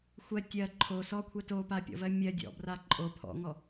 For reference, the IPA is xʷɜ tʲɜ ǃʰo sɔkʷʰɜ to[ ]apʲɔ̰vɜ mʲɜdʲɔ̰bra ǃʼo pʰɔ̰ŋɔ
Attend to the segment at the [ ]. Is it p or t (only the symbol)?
p